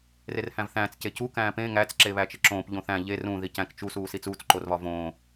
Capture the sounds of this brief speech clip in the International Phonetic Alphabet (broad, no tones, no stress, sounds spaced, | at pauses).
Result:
r e r h æ̃ v θ æ̃ː t͡s c e c u k æ̃ː p ẽ ŋ æ t͡s ǁ e β æ t͡ʃ e ǁ õː p ʎ õ θ æ̃ ʎ e r ũ ð i c æ̃ k t͡ʃ u s uː s i t͡s uː t͡s ǃ o r β ɒ v õː